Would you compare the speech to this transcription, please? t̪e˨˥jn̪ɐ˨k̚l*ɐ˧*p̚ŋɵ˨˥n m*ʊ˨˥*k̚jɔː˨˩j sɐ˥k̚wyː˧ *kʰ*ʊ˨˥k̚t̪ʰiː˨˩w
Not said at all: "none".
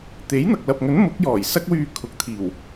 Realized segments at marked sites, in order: ɐ˨, ʊ˨˥, kʰ

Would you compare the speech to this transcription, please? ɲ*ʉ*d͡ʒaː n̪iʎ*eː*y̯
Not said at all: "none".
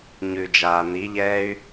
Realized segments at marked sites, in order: ʉ, ɛː

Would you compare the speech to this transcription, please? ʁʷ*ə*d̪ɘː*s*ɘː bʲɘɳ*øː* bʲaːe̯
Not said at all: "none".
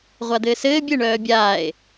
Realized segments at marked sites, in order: a, s, œː

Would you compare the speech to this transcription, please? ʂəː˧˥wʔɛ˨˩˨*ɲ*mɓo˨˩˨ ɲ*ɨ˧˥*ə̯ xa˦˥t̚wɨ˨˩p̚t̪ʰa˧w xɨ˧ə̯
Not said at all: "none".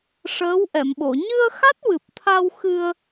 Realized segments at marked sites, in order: none, ɨ˧

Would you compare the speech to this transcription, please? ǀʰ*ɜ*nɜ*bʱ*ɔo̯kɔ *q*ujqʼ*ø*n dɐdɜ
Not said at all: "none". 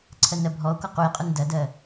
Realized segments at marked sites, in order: ɜ, bʱ, q, u

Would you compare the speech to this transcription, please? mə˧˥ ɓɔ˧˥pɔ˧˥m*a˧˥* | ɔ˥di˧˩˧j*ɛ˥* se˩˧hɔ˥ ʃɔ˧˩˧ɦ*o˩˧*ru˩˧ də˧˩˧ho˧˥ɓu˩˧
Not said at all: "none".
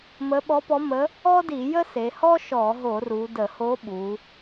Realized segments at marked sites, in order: ə˧˥, ə˥, o˧˩˧

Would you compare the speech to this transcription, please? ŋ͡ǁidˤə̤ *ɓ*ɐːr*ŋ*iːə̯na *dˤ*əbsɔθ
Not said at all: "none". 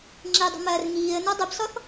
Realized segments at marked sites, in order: m, ŋ, dˤ

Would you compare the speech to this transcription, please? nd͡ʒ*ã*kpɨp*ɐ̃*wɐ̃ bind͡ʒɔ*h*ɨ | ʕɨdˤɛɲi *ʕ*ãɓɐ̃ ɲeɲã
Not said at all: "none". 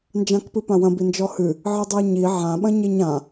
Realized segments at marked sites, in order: ã, ã, h, ʕ

